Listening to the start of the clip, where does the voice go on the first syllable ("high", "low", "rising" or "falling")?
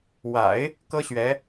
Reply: low